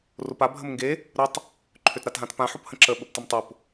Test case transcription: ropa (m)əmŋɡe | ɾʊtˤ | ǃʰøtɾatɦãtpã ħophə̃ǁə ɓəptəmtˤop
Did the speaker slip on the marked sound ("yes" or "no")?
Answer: yes